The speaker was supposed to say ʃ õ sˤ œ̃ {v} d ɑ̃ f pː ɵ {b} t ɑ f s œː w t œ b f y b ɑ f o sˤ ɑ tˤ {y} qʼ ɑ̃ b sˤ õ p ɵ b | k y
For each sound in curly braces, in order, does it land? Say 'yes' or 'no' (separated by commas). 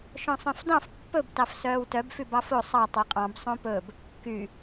no, yes, no